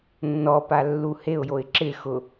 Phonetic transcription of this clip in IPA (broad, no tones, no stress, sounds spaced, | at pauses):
nː ɔ p a lː u h e ʊ̯ j o ɪ̯ ǁ ɪ x ʊ